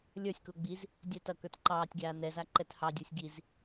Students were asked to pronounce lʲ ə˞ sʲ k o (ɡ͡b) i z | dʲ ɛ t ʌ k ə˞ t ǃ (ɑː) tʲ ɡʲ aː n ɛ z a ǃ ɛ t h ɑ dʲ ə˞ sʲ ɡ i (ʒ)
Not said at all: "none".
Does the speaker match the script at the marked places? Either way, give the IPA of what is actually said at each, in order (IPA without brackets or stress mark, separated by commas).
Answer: ɡ͡b, ɑː, z